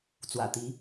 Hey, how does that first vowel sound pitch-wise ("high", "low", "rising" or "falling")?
low